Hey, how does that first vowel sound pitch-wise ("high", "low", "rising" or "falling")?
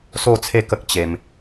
falling